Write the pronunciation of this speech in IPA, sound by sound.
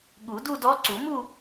ɠu˨˩˦ du˥˧dɔ˧˥ ǀu˨˩˦mu˥˧

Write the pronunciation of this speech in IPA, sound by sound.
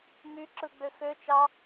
myǁɯɡ͡bø xøt͡ʃɑ

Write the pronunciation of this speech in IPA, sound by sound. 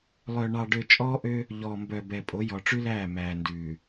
lˠœ˨ɳɑ˨ɖø˨ t͡ʃʼɔː˦ʔø˦ | ʎɔː˨mbœ˨ bɛ˨pʼo˨˦ jɔ˨ʈ͡ʂʉ˦læː˦˨ mæː˨ndʉː˨

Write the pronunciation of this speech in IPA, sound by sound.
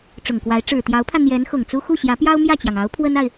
ʈ͡ʂʊ˨˩ŋkwa˧˥ɪ̯ ʈ͡ʂɻ̩˨˩t̪jɑ˧˥ʊ̯pʰä˧ n̪jɛ˧˥n xʊ˨˩ŋt͡su˥ xu˥˩ɕjä˧˥pjɑ˥ʊ̯ mjä˥˩t͡ɕjɑ˩ŋɑ˧˥ʊ̯ pʰwə˥na˨ɪ̯

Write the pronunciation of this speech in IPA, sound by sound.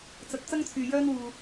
t͡sɐ˧t̚ t͡sɐ˥ŋt͡sʰyː˨ jœː˥nwuː˨

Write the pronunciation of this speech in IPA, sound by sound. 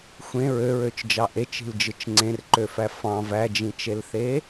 xʷẽ ɹøɹøt͡ʃd͡ʒɑ ʔet͡ʃi̤ld͡ʒɯt͡ʃ ŋ͡ǀẽrǃøfæ fɑ̃v æd͡ʒĩt͡ʃelθe

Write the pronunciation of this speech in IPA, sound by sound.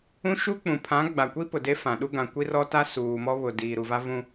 ũ˦ʃu˦k͡pũ˨ pʰã˨˦ ɡ͡ba˨kʷi˦ pʊ˨de˦fã˨ɗu˦ ɡã˨ kʷi˦rɔ˦ta˦ suː˨mɔ˦βʊ˨ diː˨ɾu˨va˦vũ˦

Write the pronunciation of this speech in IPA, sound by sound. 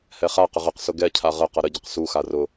hɛχaqəʁ əqsʊ ɡɛcʰa ʁə qʌɾəɟəq suxa rʊ

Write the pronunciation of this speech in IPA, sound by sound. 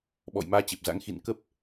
ɓɔ̰˧˨jmaː˧t͡ɕe˨˩p̚za̰˧˥ŋ xḭ˧˨nkə˦˥p̚

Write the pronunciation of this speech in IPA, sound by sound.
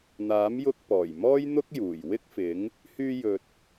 n̪aː˨˥mjʊ˧k̚ pɔː˨˩jmɔː˥jn̪ʊ˥k̚juː˨˩j wɪ˥k̚fɪ˨˥ŋ | hyː˧jɵ˨t̚

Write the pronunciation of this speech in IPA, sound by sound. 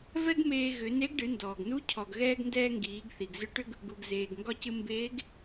vɛ˥ɡmeː˧ ɣʏ˩˧ne˧˥ɡ ɖɨ˩˧ndɔː˩ɡnu˧˥ cʰɔ˩ɡɣɛː˧ɡndɛː˧ ŋɡiː˩˧ɡθi˩ɡzʏ˧˥ʈʏ˥ɡ | ɡu˩ɡ zeː˩ɡ ŋɡɒ˧cɨ˧ mbeː˧˥ɡ

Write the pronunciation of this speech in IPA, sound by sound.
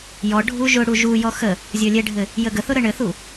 jɔɖʱu ʒʊɽu ʒujɔ xə | zʲɔlʲɛɖʱɘ | jəɡəθʊ ɾəɳɘθu

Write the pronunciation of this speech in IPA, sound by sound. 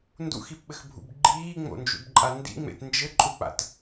ndṵxipɓɘxbʱṵb ɡ͡ǃiːŋ͡mo̰nd͡ʒṵbǃʼa ndḭŋ͡mḛt nd͡ʒɘǃʼuk͡pa̰t

